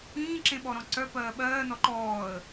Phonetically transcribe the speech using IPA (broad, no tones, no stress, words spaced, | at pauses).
ĩːǁẽɓɔɾɔ̃ ǀœpɜː ɓɜːnɔ ǃɔːə̯